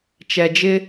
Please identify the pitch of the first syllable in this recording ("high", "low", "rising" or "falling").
low